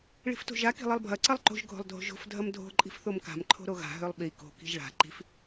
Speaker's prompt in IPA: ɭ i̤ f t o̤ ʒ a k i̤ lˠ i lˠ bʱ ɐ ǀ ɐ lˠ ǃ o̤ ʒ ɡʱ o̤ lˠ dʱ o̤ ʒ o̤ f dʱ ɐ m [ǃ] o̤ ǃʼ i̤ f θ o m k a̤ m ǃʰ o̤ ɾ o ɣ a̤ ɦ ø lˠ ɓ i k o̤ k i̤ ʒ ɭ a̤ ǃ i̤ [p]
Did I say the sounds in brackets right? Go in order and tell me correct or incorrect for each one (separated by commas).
incorrect, incorrect